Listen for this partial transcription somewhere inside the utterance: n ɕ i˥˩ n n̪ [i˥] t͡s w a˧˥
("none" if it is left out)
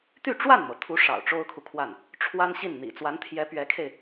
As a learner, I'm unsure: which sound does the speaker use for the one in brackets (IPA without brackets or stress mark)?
ḭ˨˩